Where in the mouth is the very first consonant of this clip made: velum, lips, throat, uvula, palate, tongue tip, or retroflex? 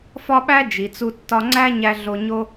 lips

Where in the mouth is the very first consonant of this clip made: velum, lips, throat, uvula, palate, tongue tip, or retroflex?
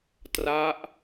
tongue tip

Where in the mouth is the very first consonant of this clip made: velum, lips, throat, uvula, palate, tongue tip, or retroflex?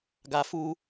velum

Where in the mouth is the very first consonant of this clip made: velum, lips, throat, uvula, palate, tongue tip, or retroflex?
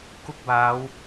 velum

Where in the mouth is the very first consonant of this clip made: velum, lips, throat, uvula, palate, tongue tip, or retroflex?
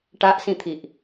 retroflex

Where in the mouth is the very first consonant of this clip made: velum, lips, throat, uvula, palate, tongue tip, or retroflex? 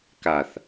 velum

